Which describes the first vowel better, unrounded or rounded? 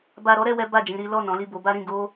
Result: unrounded